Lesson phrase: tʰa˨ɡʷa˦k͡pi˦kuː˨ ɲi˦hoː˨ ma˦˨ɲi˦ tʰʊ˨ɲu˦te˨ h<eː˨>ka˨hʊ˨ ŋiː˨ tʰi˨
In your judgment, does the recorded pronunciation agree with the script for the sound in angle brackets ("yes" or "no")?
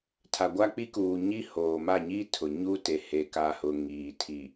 no